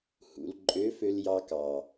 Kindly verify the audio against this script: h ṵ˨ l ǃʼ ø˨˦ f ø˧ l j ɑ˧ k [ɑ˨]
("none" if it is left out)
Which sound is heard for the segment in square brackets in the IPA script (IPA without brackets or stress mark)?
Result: ɑ˨